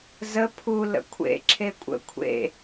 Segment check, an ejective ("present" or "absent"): present